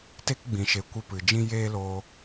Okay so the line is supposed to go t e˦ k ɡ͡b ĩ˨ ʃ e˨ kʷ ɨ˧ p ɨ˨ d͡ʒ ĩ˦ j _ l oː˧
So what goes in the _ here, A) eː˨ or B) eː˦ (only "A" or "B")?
B